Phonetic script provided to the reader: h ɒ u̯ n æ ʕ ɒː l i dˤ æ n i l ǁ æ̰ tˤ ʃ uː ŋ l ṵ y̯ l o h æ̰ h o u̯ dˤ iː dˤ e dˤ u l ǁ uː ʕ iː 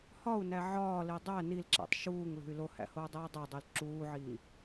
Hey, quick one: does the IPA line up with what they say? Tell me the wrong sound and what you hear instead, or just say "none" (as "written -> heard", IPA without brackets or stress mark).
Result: ṵ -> ṳ